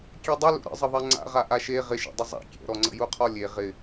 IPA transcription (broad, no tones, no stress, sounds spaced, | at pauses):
kʲ ɛ dˤ ɪ l ṵ ɾ ə̰ zˤ ə ðˤ ɛ ŋ͡ǀ a̰ ʁ a ʔ a ʃ e ʁ ɪ ʃ ḛ dˤ ə zˤ a̰ kʲ ɛ̰ ɾ ɔ ŋ͡ǀ ə̰ j u qʰ ɔ lʲ e ʁ ɪ